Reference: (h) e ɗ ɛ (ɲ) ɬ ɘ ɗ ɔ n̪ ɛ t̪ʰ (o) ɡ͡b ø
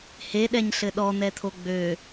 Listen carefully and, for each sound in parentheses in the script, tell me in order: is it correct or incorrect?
correct, correct, correct

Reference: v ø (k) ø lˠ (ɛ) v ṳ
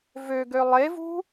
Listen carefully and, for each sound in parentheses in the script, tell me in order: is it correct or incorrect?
incorrect, incorrect

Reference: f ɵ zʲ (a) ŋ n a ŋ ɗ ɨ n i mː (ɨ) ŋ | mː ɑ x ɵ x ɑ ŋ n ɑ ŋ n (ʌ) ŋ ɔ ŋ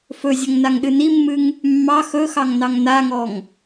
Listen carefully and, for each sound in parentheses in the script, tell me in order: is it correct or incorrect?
incorrect, correct, incorrect

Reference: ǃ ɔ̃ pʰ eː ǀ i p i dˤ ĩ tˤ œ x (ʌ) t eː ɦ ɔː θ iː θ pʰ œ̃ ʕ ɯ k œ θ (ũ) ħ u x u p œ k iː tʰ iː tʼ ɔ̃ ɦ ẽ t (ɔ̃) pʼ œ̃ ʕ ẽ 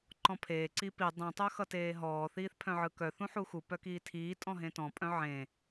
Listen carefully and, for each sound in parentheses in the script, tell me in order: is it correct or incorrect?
correct, correct, correct

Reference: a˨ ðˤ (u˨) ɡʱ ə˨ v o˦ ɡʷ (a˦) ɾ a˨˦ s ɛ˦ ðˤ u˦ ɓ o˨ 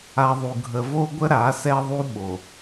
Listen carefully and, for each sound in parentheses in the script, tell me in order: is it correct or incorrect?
correct, incorrect

